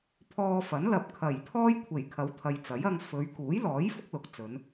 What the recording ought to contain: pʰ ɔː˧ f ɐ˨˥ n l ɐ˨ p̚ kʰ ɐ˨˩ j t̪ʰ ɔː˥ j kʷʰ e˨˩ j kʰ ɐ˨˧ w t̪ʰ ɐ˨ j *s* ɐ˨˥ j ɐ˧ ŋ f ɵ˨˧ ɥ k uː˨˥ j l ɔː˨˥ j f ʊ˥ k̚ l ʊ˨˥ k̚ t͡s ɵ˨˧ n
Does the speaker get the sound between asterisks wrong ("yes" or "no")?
yes